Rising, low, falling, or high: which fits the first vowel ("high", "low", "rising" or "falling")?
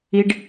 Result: low